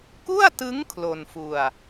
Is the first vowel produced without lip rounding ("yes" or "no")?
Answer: no